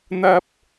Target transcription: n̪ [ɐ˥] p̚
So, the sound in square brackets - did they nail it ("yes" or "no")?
yes